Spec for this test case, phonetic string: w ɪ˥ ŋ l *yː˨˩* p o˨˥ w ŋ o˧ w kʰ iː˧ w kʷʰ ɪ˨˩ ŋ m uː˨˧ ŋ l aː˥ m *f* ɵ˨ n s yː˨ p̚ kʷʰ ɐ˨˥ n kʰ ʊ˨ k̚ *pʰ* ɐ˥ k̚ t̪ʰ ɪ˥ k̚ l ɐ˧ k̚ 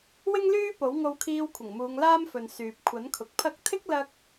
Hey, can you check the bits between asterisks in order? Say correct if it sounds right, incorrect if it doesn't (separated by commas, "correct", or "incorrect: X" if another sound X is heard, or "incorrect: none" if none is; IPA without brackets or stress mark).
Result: incorrect: yː˥, correct, correct